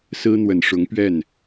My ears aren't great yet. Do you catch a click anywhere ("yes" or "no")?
no